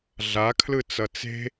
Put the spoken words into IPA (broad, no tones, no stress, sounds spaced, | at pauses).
ɮ a kʰ l ɯ t͡s ʌ t͡s e̤